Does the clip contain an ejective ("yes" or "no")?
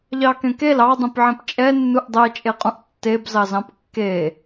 yes